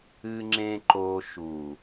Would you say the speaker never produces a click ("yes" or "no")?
no